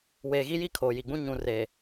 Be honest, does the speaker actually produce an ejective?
no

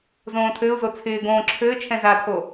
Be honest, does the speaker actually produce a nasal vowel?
yes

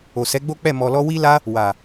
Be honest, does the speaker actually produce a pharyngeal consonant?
no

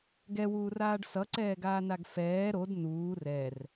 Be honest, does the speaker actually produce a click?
yes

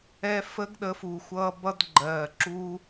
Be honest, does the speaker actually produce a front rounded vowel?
no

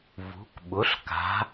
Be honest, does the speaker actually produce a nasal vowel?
no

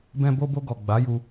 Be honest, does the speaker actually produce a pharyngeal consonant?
no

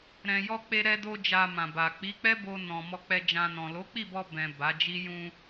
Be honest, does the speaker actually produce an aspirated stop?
no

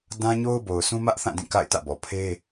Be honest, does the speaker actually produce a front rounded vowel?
no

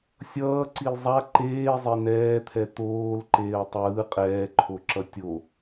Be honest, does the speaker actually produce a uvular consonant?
yes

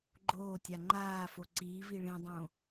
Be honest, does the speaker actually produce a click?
yes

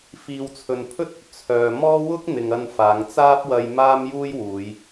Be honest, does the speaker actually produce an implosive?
no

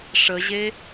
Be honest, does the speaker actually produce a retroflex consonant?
yes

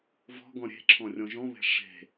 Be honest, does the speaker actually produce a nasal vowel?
yes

